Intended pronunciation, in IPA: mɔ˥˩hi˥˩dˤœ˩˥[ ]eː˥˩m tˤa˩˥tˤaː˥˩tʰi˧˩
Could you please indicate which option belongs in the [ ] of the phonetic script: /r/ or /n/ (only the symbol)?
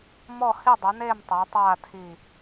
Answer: n